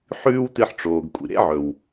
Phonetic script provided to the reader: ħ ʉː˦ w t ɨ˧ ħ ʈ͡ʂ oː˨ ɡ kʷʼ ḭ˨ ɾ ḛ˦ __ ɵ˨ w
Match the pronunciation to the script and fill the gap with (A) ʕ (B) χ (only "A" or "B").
A